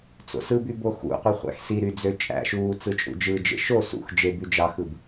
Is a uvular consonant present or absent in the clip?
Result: present